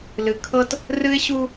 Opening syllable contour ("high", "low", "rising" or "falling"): low